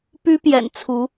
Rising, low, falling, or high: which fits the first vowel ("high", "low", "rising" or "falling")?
high